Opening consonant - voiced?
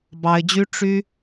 yes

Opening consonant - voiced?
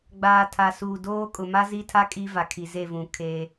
yes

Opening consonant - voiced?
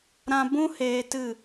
yes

